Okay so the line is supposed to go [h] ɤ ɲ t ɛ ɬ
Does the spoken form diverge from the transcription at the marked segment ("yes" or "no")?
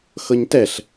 yes